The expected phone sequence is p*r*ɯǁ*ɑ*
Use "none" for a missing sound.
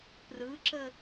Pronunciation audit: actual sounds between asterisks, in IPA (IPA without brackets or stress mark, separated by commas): r, ə